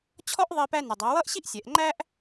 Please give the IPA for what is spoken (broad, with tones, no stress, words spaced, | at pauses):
t͡ɕʰɔ˥ʔðˤi˧ pæ˧nɪ˩dˤæ˩˧ wʌ˥ʔɕi˥ʔ sʲɛ˩˧ʔŋ͡ǃæ˥ʔ